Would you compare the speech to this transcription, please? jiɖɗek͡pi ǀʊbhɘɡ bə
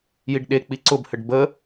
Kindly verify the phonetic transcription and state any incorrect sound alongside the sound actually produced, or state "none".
ɡ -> ɖ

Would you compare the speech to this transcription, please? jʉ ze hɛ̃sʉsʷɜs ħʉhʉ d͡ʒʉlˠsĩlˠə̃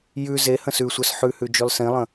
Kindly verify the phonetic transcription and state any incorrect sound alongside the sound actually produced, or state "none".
ɛ̃ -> ə̃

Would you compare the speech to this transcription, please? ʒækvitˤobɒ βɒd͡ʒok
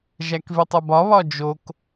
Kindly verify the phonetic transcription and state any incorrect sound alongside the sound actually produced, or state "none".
none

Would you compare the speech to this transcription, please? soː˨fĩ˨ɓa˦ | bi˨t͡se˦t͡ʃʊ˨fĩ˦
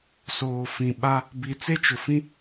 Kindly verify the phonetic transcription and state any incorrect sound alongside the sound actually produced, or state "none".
none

